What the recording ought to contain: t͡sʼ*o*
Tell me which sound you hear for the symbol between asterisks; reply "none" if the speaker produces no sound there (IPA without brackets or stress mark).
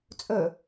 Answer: ɵ